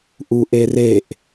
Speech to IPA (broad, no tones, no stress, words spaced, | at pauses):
ʔuʔereʔ